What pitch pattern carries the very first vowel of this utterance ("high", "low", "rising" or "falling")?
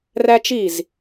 high